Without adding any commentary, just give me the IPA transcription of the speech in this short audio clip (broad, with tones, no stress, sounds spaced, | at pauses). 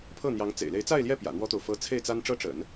pʰ ɤ˥˩ n̪ j ɑ˧˥ ŋ t͡s ḛ˨˩ ɪ̯ l e˧˥ ɪ̯ t͡s a˥˧ ɪ̯ l j ɛ˥˩ p j ä̰˨˩ n̪ w ɔ˥ t̪ o˨ ʊ̯ f ɤ˥ t͡sʰ e˥˩ ɪ̯ t͡s a˥ n ʈ͡ʂ ɤ˥ ʈ͡ʂ ə̰˨˩˦ n